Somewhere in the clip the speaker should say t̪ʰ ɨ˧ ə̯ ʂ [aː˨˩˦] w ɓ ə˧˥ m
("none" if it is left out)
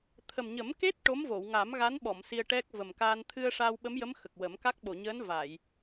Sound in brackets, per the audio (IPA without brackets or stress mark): aː˧